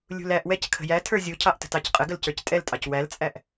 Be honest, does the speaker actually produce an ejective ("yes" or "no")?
yes